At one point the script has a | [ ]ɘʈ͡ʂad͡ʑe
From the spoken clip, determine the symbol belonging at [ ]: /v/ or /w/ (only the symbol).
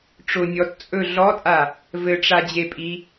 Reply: v